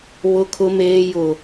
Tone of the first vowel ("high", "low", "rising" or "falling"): low